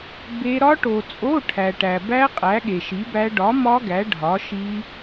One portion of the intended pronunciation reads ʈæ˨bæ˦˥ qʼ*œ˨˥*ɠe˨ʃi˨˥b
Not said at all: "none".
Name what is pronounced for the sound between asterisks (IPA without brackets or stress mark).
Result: æ˨˥